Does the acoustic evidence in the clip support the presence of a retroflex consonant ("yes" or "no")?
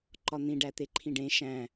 yes